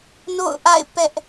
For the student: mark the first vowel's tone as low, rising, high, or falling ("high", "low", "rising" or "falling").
falling